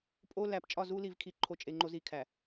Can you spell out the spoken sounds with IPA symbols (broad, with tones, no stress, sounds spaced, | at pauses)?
pʼ o˦ l æ˨ p t͡ʃʼ ɒ˦˨ z u˦ l i˨ v kʰ i˨ ǃʰ o˨ t͡ʃʼ e˨ ŋ͡ǃ o˦ z i˨ kʰ æ˨